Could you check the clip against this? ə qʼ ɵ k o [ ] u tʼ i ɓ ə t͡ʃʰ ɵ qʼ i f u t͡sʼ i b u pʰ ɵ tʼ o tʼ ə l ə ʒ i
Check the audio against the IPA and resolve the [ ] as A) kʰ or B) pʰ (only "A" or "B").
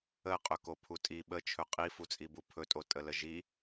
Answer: B